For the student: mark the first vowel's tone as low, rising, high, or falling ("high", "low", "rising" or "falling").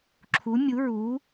rising